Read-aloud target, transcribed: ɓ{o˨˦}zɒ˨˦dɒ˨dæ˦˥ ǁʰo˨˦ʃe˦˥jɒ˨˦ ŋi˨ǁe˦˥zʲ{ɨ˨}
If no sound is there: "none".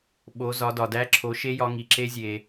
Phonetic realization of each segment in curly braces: o˨˦, e˨

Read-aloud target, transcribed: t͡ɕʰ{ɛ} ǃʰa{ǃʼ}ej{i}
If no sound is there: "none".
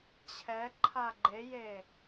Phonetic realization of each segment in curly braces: ɛ, ɡ͡ǃ, e

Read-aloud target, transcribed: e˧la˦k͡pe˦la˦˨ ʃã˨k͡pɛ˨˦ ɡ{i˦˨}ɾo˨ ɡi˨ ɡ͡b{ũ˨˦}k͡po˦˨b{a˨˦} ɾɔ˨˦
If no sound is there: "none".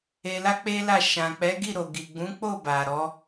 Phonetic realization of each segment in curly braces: i˦˨, ũ˨˦, a˨

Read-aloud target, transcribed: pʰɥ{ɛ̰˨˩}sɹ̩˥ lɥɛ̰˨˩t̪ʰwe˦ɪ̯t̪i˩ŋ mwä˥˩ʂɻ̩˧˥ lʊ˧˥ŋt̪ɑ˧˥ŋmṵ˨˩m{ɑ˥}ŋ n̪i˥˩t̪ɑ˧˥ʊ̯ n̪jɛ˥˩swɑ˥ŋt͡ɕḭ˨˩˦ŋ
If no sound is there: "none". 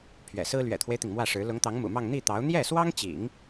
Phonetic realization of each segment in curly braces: ɛ̰˨˩, ɑ˥˧

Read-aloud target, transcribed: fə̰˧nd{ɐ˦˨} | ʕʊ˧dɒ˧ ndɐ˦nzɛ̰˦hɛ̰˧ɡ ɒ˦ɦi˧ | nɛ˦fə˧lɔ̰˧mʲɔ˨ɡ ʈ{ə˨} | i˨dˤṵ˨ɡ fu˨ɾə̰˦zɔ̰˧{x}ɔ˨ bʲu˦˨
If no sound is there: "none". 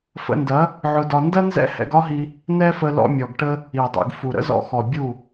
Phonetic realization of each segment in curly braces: ɐ˨˦, ə˦, x

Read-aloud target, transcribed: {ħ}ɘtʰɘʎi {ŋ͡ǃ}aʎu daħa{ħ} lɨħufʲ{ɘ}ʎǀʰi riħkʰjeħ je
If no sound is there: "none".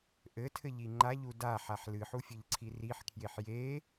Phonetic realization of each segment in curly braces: ʔ, ŋ͡ǃ, ħ, ɘ

